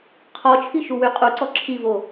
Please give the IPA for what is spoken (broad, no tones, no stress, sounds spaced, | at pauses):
qʰ ɔ t͡ʃʰ i ʃ u w y qʼ u ǀ ɔ ǁʰ i v o